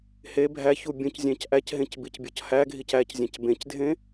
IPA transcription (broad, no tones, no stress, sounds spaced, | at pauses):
h e bʱ æ ç u bʲ õ c zʲ æ̃ c ʔ æ c ɦ ẽ c b i c bʲ ɒ c h æ ɡʱ i c æ c zʲ æ̃ c b ẽ c dʱ ẽ